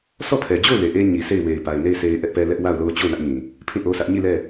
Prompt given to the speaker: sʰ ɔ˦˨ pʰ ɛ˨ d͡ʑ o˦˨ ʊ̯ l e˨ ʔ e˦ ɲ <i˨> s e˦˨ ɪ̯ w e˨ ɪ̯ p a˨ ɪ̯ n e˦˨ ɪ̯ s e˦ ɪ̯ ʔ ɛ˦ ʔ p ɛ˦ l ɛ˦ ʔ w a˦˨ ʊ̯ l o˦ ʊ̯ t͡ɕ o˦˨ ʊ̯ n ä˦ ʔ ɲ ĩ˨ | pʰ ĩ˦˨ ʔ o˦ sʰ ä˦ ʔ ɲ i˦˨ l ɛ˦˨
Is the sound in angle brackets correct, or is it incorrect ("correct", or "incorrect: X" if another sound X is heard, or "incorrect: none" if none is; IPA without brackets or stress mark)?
correct